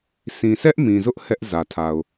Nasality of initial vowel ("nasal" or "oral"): nasal